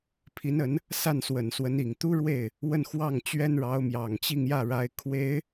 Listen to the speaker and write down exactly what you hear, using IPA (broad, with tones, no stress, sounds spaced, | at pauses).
pʰ i˧˥ n ə˧˥ n | s a˥˩ n s w ə˨˩ n s w ə˧˥ n i˨˩ ŋ t̪ u˥ ɻ w e˥˩ ɪ̯ | w ə˥˧ n x w ɑ˥˩ ŋ t͡ɕ ɥ ɛ˥ n ɻ ɑ˧˥ ʊ̯ m j ɑ˨˩ ŋ t͡ɕ i˥˧ ŋ j ä˥˩ ɻ a˧˥ ɪ̯ kʰ w e˧˥ ɪ̯